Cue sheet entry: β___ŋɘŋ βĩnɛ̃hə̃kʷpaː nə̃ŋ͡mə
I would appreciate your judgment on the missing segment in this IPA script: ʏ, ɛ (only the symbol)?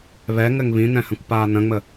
ɛ